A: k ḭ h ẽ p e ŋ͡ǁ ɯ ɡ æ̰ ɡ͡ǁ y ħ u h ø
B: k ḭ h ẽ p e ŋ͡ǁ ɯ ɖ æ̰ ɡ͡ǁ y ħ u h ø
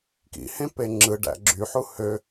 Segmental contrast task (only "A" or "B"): B